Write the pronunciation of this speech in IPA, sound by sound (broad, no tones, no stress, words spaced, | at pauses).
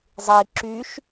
zˤi ǁyʃ